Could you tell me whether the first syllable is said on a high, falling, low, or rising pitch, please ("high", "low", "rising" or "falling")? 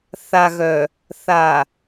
low